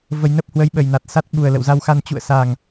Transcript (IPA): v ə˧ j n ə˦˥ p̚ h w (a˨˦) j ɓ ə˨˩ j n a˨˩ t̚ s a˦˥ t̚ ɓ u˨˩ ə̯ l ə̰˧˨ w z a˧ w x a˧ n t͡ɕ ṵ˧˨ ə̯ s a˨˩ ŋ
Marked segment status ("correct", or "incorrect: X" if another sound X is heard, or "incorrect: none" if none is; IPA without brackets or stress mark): incorrect: ə˨˦